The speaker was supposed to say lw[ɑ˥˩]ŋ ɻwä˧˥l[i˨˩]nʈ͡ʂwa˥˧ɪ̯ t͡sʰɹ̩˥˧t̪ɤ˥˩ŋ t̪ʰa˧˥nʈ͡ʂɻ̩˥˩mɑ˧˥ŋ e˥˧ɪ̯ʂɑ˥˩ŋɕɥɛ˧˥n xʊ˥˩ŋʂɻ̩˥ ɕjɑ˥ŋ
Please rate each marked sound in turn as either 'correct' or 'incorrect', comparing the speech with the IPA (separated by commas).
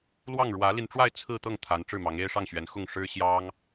correct, incorrect